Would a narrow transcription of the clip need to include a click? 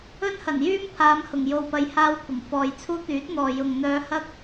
no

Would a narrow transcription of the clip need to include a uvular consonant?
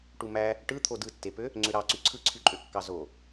no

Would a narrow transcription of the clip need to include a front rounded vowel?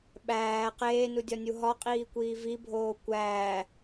no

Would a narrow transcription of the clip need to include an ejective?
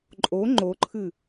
yes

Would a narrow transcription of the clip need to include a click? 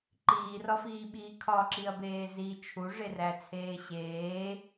yes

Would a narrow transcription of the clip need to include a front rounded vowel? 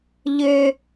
yes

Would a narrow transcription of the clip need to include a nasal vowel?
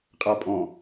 yes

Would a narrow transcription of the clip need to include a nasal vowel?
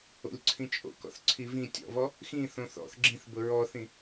yes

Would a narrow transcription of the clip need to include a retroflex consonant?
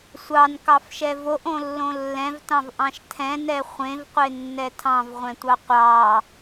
no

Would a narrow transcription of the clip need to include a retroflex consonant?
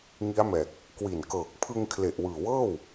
no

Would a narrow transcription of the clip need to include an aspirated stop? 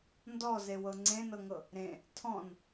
yes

